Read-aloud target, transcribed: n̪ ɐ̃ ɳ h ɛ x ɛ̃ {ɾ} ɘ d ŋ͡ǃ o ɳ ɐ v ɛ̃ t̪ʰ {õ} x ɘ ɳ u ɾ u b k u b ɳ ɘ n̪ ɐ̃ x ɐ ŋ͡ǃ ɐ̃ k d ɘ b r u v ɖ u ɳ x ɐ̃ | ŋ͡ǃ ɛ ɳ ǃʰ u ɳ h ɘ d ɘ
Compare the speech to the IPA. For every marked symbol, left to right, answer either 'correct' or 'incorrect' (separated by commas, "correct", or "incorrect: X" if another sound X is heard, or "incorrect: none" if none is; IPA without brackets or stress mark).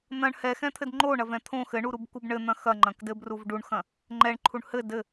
incorrect: t̪ʰ, correct